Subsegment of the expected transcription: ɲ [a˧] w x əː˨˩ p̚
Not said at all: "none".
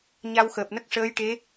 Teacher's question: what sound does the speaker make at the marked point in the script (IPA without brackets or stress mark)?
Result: a˧